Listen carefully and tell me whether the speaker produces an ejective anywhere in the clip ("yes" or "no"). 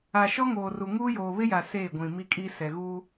yes